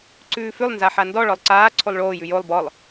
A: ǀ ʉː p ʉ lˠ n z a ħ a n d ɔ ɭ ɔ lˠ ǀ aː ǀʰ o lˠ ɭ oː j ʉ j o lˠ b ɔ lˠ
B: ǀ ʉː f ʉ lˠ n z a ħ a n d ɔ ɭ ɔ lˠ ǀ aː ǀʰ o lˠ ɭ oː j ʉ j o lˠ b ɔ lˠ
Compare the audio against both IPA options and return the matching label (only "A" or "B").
B